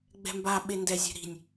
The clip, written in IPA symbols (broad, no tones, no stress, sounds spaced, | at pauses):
ɡ͡b ɛ̤ m b a ɓ e n d ɛ zʲ ɛ̤ ɾ i̤ nʲ